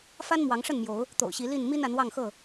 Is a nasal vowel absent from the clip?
yes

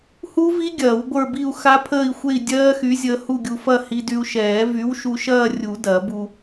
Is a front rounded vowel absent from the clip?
no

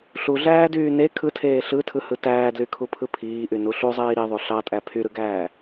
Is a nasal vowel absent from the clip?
yes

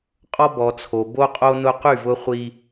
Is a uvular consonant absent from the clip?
no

